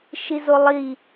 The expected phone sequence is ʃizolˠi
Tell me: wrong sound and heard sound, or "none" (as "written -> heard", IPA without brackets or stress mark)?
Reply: none